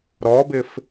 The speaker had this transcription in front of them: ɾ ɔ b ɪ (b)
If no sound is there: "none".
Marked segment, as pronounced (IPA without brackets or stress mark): f